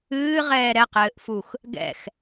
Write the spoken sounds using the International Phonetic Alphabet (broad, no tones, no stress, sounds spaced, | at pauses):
ɨː ʁ ɛː ɾ ɛ q ɘː ʔ f u x | ɡ ɛ̰ x